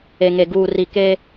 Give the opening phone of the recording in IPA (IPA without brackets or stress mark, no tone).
e